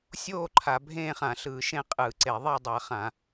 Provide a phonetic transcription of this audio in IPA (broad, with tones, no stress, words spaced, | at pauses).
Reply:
sʲoː˥˧ ǃʰa˧˩˧ bʱẽː˥˧χã˧˩˧ ɬɯː˧˩˧ʃẽ˥˧ qʼɯː˧˩˧ǀe˧˩˧ ðˤe˥˧ dˤa˧˩˧ χã˧˩˧